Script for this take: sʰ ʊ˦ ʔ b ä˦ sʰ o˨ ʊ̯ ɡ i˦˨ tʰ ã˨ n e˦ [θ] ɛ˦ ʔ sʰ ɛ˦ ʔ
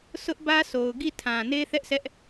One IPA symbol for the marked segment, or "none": θ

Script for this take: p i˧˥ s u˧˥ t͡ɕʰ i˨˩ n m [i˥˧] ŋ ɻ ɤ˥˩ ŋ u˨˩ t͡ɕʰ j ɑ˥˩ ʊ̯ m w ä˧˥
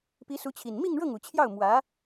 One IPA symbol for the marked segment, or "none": i˥˧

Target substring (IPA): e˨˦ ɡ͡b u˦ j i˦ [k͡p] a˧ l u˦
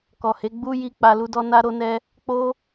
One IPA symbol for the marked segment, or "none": k͡p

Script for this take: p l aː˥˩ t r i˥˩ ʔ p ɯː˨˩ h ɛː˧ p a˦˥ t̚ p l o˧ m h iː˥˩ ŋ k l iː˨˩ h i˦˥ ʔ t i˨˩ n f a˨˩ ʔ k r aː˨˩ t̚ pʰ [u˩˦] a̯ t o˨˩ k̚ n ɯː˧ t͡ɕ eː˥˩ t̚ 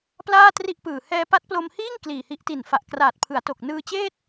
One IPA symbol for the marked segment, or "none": ɯ˩˦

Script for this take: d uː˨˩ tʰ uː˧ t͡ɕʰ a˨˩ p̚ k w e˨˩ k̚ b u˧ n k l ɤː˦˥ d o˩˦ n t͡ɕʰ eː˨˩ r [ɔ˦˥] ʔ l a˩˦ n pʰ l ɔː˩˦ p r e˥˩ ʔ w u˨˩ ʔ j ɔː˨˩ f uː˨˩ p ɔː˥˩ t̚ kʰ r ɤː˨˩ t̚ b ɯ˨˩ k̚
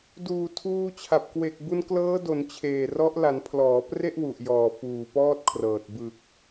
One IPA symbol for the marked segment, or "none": ɔ˦˥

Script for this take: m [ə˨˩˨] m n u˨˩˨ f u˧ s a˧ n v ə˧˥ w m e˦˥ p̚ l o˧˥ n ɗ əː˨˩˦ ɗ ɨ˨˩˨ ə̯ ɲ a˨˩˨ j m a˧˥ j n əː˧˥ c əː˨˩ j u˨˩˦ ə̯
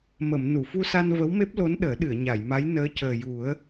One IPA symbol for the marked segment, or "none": ə˨˩˨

